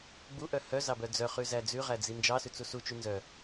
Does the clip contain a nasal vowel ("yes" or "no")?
no